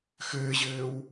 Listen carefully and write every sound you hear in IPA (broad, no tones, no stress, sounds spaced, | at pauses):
x ɘː ʑ ɘː w